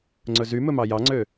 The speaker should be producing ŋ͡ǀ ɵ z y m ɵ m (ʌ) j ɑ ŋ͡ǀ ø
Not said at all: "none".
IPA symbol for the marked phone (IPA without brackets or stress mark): ɑ